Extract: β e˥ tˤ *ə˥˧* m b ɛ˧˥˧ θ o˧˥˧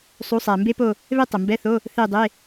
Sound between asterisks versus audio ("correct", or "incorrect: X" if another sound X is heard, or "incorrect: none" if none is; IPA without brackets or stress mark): incorrect: ə˩